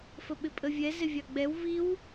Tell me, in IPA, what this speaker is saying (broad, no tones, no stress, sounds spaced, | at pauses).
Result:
f ə ɓ ɪ pʼ ə vʲ ɛ z ɪ vʲ ɑ ɡ͡b ɛ w v i w